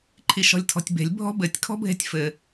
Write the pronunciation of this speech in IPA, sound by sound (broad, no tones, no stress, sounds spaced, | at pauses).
ǃʰ i ʃ ɔ̤ lʲ tʰ ɔ̤ tʲ b e̤ lʲ bʱ ɔ̤ b ɘ tʲ kʰ ɔ̤ bʱ e̤ tʲ f ɘ